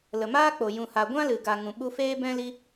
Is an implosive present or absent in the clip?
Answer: present